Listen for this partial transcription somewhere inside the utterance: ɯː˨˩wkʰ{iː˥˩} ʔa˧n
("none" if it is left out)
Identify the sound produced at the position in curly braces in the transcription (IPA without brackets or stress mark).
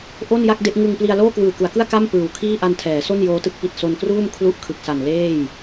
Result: iː˥˩